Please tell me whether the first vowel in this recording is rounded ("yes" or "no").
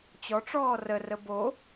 yes